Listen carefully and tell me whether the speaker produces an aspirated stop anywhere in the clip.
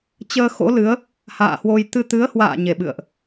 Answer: no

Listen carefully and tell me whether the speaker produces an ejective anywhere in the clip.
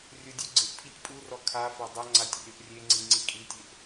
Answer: yes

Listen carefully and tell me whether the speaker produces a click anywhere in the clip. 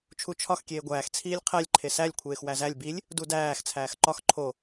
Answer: yes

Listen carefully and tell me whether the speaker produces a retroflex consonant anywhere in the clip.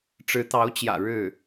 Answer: yes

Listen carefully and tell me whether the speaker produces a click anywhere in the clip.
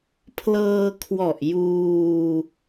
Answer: no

